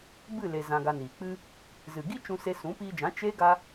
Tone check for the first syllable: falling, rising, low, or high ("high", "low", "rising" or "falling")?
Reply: falling